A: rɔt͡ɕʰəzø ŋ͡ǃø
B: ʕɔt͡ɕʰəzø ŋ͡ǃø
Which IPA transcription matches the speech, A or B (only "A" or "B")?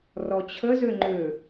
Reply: A